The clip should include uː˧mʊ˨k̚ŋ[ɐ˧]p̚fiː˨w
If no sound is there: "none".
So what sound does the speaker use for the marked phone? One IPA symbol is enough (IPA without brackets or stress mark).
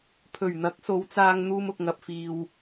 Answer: ɐ˨